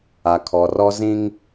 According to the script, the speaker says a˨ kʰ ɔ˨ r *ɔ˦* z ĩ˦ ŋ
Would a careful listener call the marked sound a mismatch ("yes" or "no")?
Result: no